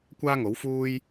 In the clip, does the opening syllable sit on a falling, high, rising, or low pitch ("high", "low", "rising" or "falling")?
high